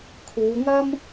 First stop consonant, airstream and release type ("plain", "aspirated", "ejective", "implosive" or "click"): aspirated